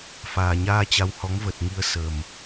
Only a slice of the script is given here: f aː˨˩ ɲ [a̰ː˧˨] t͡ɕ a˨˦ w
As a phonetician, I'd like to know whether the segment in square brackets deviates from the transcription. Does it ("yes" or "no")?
yes